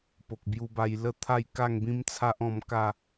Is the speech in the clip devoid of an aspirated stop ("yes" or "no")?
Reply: no